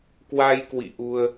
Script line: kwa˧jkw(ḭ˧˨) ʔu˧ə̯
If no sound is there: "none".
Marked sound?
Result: ḭ˧˨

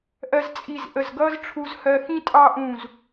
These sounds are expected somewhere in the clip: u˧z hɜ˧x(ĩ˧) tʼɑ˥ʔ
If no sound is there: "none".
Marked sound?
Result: ĩ˥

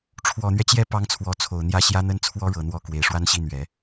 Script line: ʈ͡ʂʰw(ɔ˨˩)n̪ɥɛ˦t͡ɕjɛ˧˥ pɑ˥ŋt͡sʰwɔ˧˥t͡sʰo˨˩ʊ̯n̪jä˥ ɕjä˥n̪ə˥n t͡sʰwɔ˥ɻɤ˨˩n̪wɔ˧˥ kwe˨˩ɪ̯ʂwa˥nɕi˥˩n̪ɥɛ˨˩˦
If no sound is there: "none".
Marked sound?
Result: ɔ˨˩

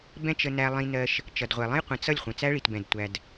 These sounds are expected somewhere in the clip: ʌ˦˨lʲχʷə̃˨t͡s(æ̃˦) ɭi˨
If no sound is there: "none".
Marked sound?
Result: æ˦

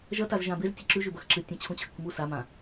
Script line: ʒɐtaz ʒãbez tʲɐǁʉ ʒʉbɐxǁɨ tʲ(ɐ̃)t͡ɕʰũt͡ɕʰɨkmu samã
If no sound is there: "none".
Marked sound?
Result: ɐ̃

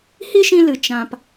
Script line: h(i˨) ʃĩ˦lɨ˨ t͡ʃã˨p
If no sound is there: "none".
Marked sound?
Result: i˦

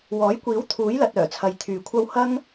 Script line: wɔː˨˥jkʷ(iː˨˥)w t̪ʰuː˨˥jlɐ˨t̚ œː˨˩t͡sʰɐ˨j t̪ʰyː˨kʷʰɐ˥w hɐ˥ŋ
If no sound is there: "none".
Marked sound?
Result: iː˨˥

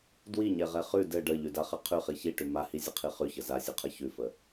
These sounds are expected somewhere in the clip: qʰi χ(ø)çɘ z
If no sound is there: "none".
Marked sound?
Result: ʉ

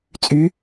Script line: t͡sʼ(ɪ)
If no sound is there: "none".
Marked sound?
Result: y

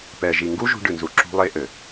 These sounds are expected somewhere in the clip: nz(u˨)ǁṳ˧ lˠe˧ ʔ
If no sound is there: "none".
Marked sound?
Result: u˨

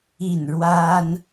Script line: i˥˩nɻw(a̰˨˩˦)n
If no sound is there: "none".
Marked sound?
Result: a˥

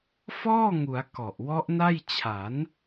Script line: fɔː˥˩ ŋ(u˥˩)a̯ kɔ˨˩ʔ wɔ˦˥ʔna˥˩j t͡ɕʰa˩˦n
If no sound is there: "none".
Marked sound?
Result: u˩˦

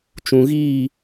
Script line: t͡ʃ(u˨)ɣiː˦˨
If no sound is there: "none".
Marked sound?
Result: ũ˨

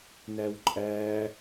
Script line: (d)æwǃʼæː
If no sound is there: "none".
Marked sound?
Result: n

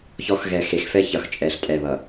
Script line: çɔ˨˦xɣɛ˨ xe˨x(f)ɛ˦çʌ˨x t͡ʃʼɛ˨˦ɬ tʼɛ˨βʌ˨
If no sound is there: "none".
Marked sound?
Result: f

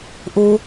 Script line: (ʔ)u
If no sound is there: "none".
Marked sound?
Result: ʔ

